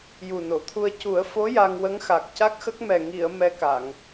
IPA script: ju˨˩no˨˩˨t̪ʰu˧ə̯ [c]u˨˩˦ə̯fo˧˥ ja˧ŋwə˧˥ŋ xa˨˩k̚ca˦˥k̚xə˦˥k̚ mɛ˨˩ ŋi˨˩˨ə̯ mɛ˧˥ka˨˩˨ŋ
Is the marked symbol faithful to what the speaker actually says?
yes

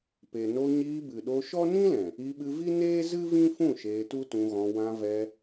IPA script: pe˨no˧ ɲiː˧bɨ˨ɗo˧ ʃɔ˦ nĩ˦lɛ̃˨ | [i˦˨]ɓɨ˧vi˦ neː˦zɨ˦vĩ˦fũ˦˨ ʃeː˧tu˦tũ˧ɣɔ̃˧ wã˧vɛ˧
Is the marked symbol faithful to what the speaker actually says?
no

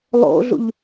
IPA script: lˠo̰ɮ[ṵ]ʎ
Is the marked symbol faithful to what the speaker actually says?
yes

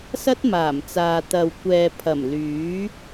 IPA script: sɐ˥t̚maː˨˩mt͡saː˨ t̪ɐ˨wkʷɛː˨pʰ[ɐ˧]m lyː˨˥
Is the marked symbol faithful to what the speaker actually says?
no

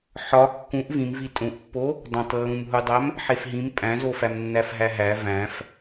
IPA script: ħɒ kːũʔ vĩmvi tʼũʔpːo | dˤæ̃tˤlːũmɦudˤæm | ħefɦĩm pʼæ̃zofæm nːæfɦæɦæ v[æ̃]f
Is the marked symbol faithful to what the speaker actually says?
yes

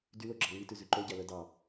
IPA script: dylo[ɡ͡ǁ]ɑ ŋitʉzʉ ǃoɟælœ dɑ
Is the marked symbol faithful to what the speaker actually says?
yes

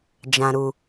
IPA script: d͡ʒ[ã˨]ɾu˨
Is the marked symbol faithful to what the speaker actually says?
yes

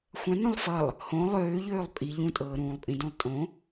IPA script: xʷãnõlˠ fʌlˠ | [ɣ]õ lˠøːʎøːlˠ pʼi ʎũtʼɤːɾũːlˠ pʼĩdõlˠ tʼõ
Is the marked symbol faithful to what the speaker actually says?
no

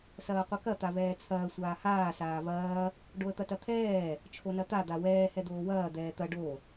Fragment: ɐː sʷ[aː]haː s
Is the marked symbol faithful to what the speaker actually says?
yes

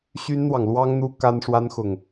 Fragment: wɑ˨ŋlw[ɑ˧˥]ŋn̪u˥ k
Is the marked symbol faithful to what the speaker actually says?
no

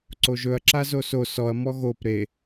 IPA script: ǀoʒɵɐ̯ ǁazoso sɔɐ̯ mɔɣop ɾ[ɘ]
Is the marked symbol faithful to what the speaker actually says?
no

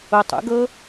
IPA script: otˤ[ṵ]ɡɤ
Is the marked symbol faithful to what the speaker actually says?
yes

